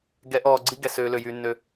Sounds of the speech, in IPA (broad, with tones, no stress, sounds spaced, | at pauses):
ɡ ɛ˨˦ ʔ ɔː˨ ɡ͡ǀ i˦ ɡ ɛ˨ s øː˨ l ø˨ j y˨ nː ø˨